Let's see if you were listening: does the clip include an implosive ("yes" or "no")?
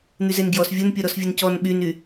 yes